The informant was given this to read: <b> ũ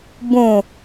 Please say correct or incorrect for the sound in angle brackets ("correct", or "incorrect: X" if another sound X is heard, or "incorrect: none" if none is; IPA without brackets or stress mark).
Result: correct